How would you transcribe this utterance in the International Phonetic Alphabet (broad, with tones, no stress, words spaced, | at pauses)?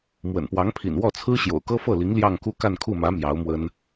mwə̰˨˩npwɑ˧˥ŋpʰḭ˨˩n wɔ˥˩t͡sʰɹ̩˥ ɕjo̰˨˩ʊ̯kɤ˥fɤ˥˩li˧˥ŋ ljɑ˥˧ŋku˥˧ ka˥˧nkʰu˥˩mä˧˥ mjɑ˧˥ʊ̯mwə˥n